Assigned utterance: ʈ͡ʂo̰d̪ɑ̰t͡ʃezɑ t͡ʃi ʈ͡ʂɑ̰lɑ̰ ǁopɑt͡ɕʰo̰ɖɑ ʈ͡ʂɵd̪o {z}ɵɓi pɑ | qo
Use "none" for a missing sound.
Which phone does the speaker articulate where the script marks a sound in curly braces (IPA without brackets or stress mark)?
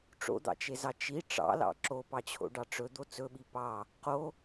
t͡s